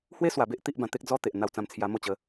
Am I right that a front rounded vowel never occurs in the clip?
yes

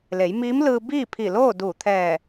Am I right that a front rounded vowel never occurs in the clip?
yes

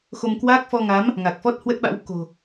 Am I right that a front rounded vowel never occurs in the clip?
yes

